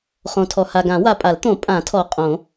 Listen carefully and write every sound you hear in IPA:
χõ˨tʰɔ˨ha˨ɡã˨˩˦ wa˨pʼa˨˩˦lt̪õ˨˩˦ pʼã˨˩˦tʰɔ˨ qʼõ˨˩˦

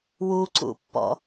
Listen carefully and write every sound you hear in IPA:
wuǀṵpːɔ̰

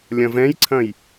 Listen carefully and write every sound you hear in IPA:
lʲɐ̃vɛ̃jǀʰɐ̃j

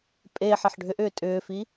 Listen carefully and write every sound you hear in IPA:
pʼe ħeħɖʱʏʔʏː tʼʏːfi

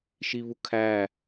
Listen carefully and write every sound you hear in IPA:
ʃiβukʰæ

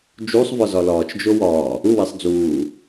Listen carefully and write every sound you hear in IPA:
d͡ʒusˤvɒ zɒlɒːt͡ʃd͡ʒo wɒː | uwesˤ d͡zuː

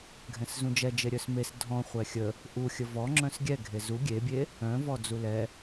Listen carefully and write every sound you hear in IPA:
ɡʱɛ̃szũd͡ʒɛd͡ʒe ɾʲœsmes dʱɔ̃ χʷɛxʲə | ʔuxʲə vɔŋ͡ǁœ̃s ɡʲɛɡʱe zu ɡʲebʲe | œ̃vɔ d͡zulɛ

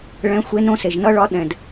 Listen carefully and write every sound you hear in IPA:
ɭɛ̃˧˥xʷe˧˥nõ˧˥ se˩ʒnʌ˥ɭɒ˧˥ ɗɛ̃˩d

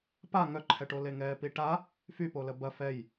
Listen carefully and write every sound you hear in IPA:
pa ŋœǃʰɛʈo leŋɛːpiʈa | fypolə bɐ fɛj

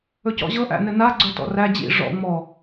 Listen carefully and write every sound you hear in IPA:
ɵcɔ̰ʑɤ ʔæ̰nɘna ɡ͡ǀɵtɔ̰ræ d͡ʑḭ ʐɔ̰ ŋ͡mɔ

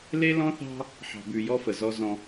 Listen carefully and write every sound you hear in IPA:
le˦lɔ̃˦θɑ̤˦ | ħɑ̤˨bʉ˨ jɔ˦fə˨ zɔ˦zɔ̃˦

